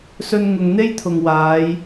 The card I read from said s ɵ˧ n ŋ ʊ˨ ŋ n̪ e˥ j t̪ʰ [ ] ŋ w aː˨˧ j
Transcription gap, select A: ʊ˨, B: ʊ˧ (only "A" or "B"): A